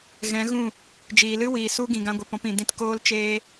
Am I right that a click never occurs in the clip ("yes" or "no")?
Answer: yes